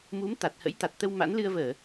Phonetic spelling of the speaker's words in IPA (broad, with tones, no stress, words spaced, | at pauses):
mu˨˦m t̪a˨˩t̚hə̰˧˥jt̪a˨˩t̚t̪ə˧w ma̰˧˥nlɨ˧ə̯vəː˧˩˨